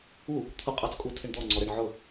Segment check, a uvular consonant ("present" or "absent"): present